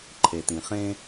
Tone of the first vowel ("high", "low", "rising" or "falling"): low